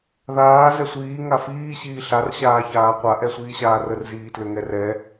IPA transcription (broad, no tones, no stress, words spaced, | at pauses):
ðaː zɛsʷiː ŋafiː ɕiːɬar ɕaːçaːqʷa ʔɛsʷiːɕaːrər ziːtlʏŋɛrɛ